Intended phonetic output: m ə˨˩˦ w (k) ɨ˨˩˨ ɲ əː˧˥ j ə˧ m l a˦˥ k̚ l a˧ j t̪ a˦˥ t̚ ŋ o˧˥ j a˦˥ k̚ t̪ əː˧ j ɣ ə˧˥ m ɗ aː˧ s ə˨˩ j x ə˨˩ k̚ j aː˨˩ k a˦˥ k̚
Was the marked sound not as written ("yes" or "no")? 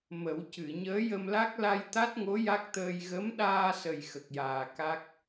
yes